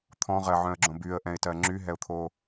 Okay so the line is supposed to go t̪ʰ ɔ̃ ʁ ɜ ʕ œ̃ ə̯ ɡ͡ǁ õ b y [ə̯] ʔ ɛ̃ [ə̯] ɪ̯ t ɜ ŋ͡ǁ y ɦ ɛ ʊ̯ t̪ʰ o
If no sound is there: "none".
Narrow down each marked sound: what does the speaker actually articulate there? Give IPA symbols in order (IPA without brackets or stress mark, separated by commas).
ə̯, none